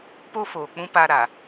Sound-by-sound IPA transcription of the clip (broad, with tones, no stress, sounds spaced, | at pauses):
p o˦ f oː˨ k͡p ũ˦ p a˦ ɾ a˨